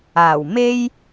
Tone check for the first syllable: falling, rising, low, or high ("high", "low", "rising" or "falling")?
low